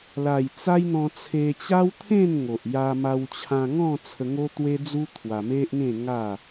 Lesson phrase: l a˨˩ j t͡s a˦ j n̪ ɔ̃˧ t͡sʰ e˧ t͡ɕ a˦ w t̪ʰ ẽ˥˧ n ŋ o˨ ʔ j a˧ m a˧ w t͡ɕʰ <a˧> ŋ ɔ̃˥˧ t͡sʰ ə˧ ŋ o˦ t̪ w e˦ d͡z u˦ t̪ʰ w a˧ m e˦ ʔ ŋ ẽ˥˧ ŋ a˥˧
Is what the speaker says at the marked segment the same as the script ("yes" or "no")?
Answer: no